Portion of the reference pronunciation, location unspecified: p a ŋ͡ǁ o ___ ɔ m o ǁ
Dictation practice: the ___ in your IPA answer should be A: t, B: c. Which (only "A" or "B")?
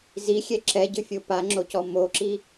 B